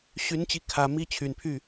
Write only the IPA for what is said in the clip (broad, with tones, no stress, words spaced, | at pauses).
ɕy˧˥n t͡ɕi˧˥kʰä˨˩ mi˥˩t͡ɕʰy˨˩npʰy˥˩